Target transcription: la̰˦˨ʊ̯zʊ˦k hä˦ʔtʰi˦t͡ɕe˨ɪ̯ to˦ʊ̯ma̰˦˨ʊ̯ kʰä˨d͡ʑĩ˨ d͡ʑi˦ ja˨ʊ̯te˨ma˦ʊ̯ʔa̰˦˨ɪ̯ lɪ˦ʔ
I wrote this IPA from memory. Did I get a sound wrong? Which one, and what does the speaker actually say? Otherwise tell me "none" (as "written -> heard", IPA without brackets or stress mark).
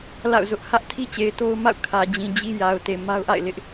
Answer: k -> ʔ